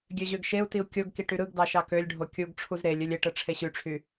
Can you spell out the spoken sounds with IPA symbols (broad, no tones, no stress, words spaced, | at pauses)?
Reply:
ɡʲøʑøɡʃeu̯tiu̯ kʲoɡki ʈyɾɯɡdɑ ʃɑkølʲɖʱo kʲuɡʈ͡ʂʰuz ɾelʲ ølʲeʈɯ ʈ͡ʂʰeɕyʈ͡ʂʰy